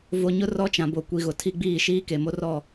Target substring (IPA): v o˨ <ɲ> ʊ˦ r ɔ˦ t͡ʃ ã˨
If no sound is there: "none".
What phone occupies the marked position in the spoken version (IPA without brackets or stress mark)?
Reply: ɲ